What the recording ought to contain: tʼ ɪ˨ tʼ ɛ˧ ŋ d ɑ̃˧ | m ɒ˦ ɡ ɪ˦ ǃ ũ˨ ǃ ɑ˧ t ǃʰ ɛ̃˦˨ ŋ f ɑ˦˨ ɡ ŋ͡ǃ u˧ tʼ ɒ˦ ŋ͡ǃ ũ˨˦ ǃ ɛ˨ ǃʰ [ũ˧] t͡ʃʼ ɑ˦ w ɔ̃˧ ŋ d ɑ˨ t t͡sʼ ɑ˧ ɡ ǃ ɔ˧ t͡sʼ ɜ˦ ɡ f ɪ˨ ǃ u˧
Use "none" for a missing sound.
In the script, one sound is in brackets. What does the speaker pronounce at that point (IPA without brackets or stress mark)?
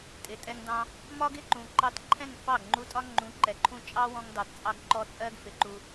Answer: ũ˧